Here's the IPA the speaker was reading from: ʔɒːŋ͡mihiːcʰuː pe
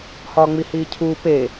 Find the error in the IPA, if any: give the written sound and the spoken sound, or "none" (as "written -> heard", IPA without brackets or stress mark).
ʔ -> h